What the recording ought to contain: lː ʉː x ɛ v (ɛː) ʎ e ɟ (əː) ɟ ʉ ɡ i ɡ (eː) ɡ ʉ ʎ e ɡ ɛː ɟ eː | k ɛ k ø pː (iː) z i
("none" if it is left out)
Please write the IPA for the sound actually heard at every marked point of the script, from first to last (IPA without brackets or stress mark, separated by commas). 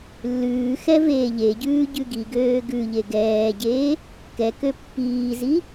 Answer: eː, ʉː, øː, iː